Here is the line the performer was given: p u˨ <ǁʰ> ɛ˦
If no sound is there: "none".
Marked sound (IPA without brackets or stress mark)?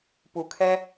kʰ